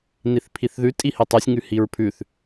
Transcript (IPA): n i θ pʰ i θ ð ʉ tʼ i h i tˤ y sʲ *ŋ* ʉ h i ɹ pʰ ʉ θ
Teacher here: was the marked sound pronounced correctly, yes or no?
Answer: yes